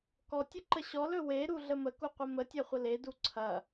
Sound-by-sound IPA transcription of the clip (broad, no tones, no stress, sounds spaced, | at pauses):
k ɔ tʲ ə ǃ ə ɕ ɔ l ɵ w e ɾ u ɮ ə m ə k u qʷ ə m ə tʲ ɐ χʷ ə l e d u ǀʰ ɐ